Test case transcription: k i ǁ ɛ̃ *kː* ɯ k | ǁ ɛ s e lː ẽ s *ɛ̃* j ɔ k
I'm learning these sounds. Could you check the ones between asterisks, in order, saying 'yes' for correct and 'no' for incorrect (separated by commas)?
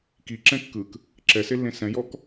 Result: yes, yes